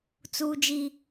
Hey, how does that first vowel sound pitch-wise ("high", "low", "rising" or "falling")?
high